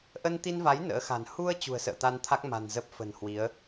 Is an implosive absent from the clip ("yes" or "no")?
yes